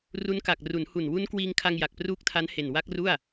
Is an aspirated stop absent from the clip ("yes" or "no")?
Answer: no